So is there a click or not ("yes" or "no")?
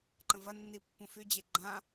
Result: yes